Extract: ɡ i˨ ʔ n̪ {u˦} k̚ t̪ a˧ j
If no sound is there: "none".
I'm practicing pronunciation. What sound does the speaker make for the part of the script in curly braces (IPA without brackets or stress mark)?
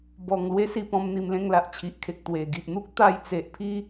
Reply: u˦